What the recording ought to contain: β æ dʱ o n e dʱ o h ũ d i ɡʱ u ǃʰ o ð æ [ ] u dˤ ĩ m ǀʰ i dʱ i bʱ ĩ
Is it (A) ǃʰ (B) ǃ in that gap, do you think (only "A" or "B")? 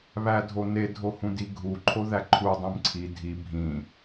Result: A